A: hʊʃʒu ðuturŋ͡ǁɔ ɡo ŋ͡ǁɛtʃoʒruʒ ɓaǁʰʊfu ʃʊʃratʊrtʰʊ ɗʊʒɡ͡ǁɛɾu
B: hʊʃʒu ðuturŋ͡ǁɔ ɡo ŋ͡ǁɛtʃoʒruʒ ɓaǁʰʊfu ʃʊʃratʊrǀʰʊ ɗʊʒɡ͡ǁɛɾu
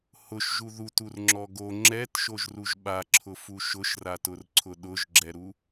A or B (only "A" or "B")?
B